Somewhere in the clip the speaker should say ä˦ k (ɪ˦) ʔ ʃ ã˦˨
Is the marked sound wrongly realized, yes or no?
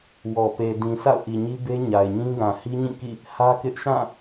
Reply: no